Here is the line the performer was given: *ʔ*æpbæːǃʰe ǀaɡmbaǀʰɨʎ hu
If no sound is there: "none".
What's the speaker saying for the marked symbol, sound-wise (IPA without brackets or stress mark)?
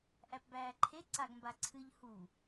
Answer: ʔ